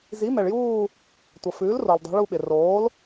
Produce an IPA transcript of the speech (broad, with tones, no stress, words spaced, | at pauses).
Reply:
zi˩˥mɛ˩ɭjuː˦˨ | tʷʌ˩fʉː˩˥lro˩ldˤɛ̤˩˧ ɭu˦˨ɓɪ˩ roː˩˥l